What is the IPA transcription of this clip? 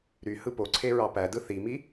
ɾy hɯpoǀʰe ɹɑpædɯ θimi

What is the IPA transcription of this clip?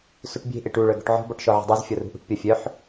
suʈbʲe̤ ʔeʈu ɭœɡɔ̤ʈʕɔ̤ bɔʈʃɔʕe̤dˤœz fʲɔrṳʔṳʈ pʲɔfʲœħ

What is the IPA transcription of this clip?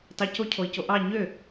tɑcocʰoi̯co ʔɑ ɲø

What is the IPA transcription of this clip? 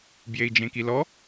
bjei̯d͡ʒẽkilɔ

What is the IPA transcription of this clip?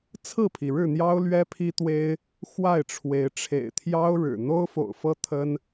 t͡sʰɹ̩˥˨pʰi˩ɻɻ̩˥˨n̪jɑ˦ʊ̯ lɥɛ˦pʰi˦t̪we˦ɪ̯ | xwa˥˨ɪ̯ʈ͡ʂʰwe˨˦ɪ̯ ʈ͡ʂʰḛ˨˩ɪ̯t̪ʰjɑ˦ʊ̯ɻɻ̩˨˩ n̪o˦ʊ̯fo̰˨˩ʊ̯fɤ˦ t̪ʰə˦n

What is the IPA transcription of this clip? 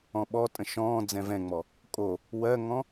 ɔ̃ɓɔtʼə̃ ʃɔ̃ː d͡zɛ̃vɛ̃ŋ͡mɔ | kʼo | wɜŋɔ̃

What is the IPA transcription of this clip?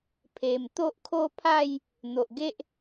pʰe˨˩m t̪o˦ʔkʰo˥˧ pʰa˥˧j | n̪o˨ʔɡe˦ʔ

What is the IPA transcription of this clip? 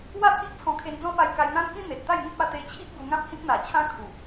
wa˥˧t̪ʰi˦ʔ t͡sʰɔ̃˧kʰe˧nd͡zɔ̃˦pa˧j ka˧jn̪ã˦nkĩ˦ n̪e˨t̚t̪a˥˧jŋĩ˦p̚ a˧t̪e˧t͡ɕʰi˦ʔ ɡu˧ŋã˦p̚ hĩ˦k̚n̪a˨˩t͡ɕʰã˦ kʰu˨˩

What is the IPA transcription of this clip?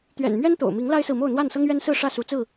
t̪ɥɛ̰˨˩n mɥɛ˦nt̪o̰˨˩ʊ̯mi˨˦ŋ la˦ɪ̯sɹ̩˨mo˥˨ʊ̯ n̪wa˥˨nsɤ˦ŋɥɛ˦nsɹ̩˥˨ ʂä˥˨su˨˦t͡sɹ̩˥˨

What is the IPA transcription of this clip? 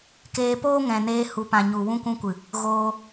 keː˧poː˦ŋɛ̃˨neː˧ hu˨pã˨ɲu˨ wũ˧kʷũ˧kʷɨ˨ | ɣoː˧

